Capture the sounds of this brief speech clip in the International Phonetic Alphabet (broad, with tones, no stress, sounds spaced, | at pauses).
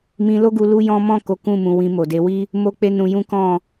m ĩ˧ l o˦ ɡ u˧ l u˦ j ɔ̃˦ m ɔ̃˦˨ k o˨˦ k ũ˦˨ m ũ˨ w ĩ˧ m o˨ d e˧ w i˦ | m o˦ k͡p e˦ n ũ˧ j ũ˦ k ɔ̃˦˨